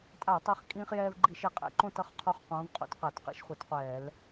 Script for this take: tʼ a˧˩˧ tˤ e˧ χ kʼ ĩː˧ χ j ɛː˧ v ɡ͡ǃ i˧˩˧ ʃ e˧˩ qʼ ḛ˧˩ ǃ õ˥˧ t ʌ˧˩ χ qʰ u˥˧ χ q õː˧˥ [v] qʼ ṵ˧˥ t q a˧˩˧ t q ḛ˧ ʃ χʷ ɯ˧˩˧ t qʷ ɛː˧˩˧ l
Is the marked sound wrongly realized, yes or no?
no